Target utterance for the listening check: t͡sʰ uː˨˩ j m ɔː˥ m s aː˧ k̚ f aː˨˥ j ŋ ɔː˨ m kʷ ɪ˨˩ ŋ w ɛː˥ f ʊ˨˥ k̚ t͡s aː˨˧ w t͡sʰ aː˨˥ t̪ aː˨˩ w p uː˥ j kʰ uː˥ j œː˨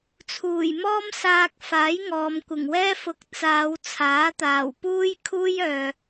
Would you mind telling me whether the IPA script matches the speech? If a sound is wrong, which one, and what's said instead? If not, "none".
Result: none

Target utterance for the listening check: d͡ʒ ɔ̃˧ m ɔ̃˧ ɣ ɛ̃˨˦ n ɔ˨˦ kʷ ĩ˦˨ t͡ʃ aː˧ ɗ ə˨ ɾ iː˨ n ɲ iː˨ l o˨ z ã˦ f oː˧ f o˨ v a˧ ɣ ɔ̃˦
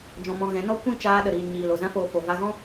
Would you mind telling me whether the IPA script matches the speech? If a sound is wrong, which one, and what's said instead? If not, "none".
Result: ɔ˨˦ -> ɔ˦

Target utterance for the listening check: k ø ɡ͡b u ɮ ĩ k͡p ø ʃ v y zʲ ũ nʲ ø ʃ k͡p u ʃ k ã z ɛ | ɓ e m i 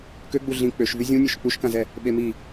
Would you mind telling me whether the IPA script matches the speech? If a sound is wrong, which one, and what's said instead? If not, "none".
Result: none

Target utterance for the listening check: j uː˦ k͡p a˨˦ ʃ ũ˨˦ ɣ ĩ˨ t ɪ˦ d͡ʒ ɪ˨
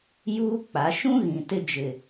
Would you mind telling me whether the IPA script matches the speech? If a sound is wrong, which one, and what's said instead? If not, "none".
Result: ũ˨˦ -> ũ˦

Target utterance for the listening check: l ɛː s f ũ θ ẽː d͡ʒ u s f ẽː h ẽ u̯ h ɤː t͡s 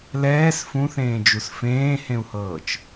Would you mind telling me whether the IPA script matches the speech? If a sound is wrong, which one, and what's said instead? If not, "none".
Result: t͡s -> t͡ʃ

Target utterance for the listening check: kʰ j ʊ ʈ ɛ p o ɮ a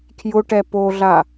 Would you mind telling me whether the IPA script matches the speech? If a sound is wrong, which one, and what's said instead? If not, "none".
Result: none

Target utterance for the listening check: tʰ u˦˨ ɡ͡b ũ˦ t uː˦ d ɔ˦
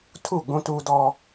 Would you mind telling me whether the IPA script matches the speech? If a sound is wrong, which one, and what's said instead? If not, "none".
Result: none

